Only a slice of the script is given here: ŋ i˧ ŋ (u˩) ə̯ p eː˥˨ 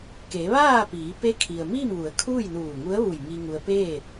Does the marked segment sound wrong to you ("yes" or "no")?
yes